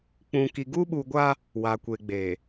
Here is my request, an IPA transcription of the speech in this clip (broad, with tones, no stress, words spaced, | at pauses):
k͡pũ˨ki˨ ɡu˦ɓu˨ɡʷa˦ | wa˨kʷe˨ɡ͡be˨